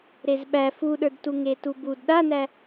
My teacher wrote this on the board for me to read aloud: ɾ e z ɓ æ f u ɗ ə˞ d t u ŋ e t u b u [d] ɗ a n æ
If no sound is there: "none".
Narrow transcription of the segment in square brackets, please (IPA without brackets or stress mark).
d